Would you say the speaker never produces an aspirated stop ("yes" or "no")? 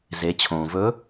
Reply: no